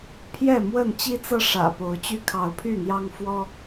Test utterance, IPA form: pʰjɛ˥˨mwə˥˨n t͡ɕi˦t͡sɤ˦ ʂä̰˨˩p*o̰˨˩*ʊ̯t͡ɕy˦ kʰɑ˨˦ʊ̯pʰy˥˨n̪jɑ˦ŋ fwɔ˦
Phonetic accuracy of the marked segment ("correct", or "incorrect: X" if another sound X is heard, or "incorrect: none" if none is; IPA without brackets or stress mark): incorrect: o˨˦